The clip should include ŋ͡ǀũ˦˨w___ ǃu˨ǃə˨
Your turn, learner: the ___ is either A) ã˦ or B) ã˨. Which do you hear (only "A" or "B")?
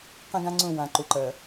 B